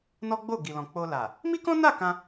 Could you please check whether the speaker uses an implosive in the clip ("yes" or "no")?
no